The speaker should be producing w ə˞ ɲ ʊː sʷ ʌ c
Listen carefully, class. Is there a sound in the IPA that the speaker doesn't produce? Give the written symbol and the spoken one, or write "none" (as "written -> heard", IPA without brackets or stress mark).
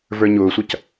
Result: w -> v